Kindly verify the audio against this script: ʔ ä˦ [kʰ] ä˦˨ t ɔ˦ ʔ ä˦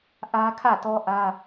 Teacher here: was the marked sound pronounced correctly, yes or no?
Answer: yes